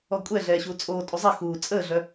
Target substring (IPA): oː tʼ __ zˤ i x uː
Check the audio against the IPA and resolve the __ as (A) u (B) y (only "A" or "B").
A